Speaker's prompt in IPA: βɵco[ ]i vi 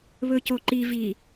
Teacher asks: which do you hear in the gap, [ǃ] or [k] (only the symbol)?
ǃ